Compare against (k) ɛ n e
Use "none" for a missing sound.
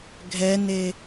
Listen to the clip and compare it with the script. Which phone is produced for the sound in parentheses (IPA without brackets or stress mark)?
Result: ɡʱ